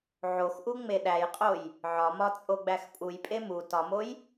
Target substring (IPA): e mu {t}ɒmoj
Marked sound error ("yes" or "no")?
no